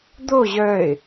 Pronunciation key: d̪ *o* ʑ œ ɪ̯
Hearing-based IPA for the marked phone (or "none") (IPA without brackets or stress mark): o